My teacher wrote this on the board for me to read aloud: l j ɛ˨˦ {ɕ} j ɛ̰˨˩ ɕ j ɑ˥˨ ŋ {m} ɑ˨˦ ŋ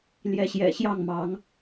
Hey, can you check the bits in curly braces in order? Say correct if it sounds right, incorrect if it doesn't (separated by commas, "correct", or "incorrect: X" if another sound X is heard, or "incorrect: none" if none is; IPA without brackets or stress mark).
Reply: correct, correct